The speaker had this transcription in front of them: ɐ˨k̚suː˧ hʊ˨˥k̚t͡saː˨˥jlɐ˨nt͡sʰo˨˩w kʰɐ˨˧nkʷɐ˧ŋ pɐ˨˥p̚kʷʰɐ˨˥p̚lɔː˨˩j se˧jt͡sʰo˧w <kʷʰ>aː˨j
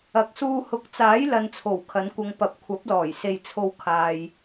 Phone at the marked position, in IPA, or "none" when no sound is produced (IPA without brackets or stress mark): kʰ